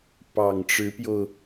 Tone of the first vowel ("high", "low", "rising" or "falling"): low